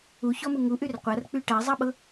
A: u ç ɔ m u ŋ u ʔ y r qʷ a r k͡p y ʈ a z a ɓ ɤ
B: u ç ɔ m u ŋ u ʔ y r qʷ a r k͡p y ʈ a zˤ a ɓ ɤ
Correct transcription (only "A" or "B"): B